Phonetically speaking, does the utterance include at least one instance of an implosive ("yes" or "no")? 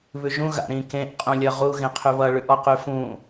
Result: no